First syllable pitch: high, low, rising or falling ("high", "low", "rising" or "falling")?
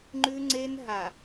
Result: high